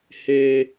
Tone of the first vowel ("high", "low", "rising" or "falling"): high